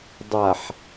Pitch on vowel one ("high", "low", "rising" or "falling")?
low